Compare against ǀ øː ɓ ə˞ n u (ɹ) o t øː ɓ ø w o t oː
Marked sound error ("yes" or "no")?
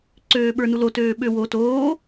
yes